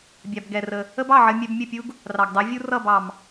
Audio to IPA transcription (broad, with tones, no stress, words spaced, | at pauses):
bʲɑ˩b ɡɛ˩rə˩ | ə˥bɑ˥˩ʕə˧ mʲɛ˧bmʲə˥˩pʲu˥ɡ | rɑ˩ɡdˤɜ˩˥vʲu˥ rʌ˥˩bɑ˩m